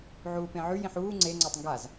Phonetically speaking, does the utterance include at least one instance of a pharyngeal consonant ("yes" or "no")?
yes